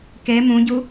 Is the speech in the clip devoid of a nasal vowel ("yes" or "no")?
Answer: no